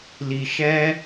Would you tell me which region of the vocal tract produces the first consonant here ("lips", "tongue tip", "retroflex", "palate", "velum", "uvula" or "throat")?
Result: tongue tip